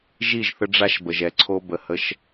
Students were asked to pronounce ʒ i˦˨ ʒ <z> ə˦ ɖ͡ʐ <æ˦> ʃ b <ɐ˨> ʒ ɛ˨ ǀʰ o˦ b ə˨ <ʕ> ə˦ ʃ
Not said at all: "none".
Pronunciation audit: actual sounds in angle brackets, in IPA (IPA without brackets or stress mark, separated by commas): θ, a˦, ə˨, h